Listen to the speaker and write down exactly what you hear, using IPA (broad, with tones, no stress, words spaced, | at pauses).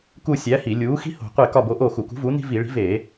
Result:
ku˦˨ sʲæ˨˥hi˧˩˧ lʲuː˨˥ xi̤˦ho̤˧˩˧ qʷe˦˨ kɒ˦˨bo˨˥ ʔoː˦˨xu˧˩˧kṳ˨˥vuː˨˥ ni̤˦vi˧˩˧ ɭi̤˨˥veː˧˩˧